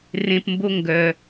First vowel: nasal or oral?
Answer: nasal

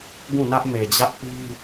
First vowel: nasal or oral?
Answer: nasal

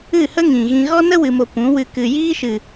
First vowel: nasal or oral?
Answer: oral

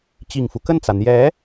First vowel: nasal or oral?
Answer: oral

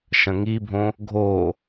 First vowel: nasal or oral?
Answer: nasal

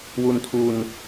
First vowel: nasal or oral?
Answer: oral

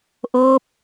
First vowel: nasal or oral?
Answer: oral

